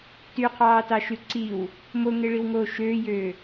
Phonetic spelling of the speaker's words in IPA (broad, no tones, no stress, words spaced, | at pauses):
tyqʰɑːtɑʃy ǀiw | moŋeɭiwŋoː ʃøːjøː